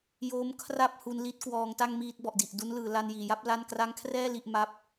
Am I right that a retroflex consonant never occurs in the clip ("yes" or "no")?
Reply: yes